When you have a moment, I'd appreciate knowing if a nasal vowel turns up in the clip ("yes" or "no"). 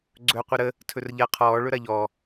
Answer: no